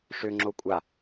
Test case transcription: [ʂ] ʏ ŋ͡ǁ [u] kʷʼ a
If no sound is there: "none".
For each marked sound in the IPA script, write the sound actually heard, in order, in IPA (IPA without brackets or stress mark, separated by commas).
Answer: ʂ, o